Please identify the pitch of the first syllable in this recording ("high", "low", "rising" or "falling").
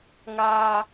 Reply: high